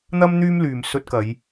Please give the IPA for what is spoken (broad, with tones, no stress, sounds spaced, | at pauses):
n̪ ɐ˥ m n̪ yː˥ m l yː˨ m s ɵ˧ t̚ k ɐ˨˧ j